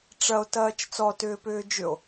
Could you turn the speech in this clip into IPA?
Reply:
ʈ͡ʂɐo̯tɐːt͡ʃ t͡sɔtʏːpʏː d͡ʒʏo̯

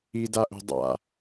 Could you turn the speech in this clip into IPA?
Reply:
idaʔo̤ dˤa̰

